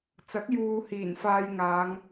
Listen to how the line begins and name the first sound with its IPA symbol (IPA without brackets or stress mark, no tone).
t͡s